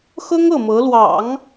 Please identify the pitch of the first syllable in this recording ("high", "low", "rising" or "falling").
high